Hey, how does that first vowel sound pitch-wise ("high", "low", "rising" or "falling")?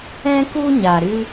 high